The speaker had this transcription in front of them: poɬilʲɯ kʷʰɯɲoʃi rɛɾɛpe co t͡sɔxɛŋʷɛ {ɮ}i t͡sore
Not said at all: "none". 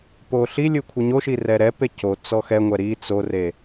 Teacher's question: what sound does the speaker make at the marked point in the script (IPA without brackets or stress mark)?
ɾ